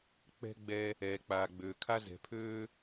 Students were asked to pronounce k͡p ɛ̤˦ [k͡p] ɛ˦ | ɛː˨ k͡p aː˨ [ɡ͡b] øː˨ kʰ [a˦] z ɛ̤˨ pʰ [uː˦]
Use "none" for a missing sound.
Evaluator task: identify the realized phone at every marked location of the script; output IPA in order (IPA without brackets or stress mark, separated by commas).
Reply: ɡ͡b, ɡ͡b, a˦, øː˦